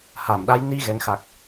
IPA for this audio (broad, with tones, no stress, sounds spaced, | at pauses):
h a˧˩ m ɗ a˨˦ j n i˧ ɣ ɛ˨˦ ŋ x a˨˩ k̚